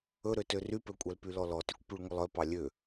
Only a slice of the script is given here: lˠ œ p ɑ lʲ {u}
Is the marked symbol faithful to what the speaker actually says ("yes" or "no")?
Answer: no